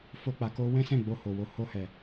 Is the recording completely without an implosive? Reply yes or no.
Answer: yes